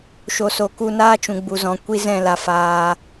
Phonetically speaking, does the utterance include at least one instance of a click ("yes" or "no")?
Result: no